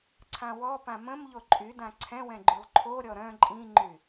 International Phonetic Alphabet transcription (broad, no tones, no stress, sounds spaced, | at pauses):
ǀʰ ã w ɔ p ã m ə̃ m ʎ o ǃʼ y d ã ǀʰ ɛ̃ w ɛ̃ ɡ͡ǃ y lˠ ǃʰ o ɾʲ ɔ ɾ œ̃ ǃʼ ĩ ŋ͡ǃ y